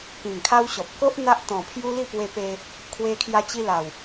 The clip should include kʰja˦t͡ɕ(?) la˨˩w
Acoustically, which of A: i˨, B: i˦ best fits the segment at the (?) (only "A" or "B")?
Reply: B